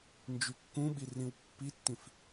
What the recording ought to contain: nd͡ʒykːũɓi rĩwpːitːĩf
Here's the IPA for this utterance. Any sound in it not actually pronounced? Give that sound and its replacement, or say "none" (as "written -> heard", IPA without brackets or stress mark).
none